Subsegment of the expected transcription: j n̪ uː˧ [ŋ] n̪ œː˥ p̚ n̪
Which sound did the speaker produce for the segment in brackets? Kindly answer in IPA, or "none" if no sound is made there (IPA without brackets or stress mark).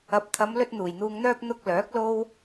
ŋ